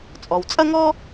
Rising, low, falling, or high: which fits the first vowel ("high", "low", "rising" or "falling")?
low